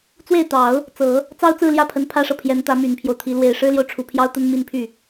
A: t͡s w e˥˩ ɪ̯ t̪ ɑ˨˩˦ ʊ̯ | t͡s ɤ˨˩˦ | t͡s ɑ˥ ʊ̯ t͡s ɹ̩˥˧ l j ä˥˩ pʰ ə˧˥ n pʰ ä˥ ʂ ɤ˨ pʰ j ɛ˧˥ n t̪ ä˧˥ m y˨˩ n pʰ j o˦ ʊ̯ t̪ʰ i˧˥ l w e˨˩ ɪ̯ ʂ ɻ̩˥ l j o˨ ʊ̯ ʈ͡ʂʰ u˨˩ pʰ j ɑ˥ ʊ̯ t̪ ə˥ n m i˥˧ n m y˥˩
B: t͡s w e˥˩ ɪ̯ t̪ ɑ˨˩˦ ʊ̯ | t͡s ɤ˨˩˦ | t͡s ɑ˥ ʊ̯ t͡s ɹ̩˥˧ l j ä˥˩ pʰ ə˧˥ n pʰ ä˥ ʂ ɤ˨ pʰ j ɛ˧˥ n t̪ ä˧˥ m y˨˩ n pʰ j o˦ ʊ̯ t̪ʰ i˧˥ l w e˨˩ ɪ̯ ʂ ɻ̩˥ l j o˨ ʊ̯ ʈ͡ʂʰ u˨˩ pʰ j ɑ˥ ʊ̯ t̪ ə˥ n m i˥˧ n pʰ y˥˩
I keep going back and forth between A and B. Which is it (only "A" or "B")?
B